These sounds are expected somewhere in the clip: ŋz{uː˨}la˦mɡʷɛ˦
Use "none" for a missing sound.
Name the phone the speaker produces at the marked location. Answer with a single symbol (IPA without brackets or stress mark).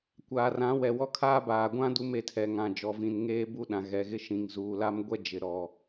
uː˨